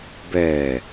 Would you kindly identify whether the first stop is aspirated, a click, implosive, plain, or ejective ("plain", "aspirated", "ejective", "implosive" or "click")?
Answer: plain